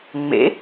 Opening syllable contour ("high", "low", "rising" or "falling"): rising